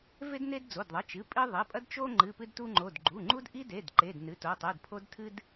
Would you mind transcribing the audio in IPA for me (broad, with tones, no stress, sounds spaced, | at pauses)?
v e˦ d n e˦ d d͡z o˩˧˩ d ðˤ ɐ˩˧˩ t͡ʃ ɨ˩˧˩ pʼ i˦ ðˤ i˩˧˩ pʼ ɐ˦ d t͡ʃ o˦ ŋ͡ǃ ɨ˩˧˩ p ɨ˦ d t u˦ ŋ͡ǃ o˩˧˩ d ɡ͡ǃ u˩˧˩ ŋ͡ǃ u˦ d ʔ i˦ d e˩˧˩ d ǃ e˩˧˩ d n ɨ˩˧˩ t o˩˧˩ tˤ ɨ˩˧˩ d pʰ o˦ d tʰ ɨ˦ d